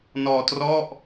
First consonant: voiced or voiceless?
voiced